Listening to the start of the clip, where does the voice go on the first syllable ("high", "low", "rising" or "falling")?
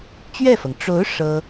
falling